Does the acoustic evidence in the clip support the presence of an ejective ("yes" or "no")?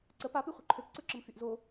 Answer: no